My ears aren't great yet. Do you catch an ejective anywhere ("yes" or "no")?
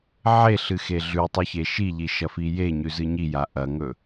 no